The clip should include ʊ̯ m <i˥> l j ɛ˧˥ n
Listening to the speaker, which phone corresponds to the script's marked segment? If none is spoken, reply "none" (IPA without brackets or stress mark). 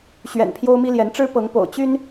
i˥